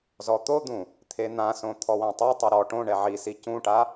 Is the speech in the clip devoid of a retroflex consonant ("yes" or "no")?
no